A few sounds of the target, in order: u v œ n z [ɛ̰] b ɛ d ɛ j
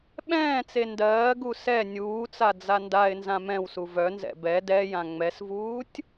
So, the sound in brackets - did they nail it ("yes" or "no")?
yes